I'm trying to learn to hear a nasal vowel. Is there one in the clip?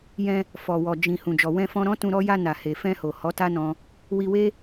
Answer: yes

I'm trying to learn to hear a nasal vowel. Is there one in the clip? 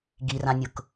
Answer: yes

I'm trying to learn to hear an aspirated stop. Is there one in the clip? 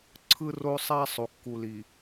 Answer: yes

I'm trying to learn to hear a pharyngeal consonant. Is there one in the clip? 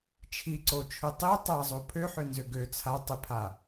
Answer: yes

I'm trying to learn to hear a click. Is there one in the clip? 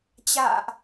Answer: no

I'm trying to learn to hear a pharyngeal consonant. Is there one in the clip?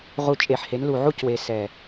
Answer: yes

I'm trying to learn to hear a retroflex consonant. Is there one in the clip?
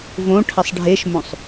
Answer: yes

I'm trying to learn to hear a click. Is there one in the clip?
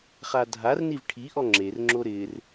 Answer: yes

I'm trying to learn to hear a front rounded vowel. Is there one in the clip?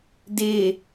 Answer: no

